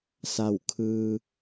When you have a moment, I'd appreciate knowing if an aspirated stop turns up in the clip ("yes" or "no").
yes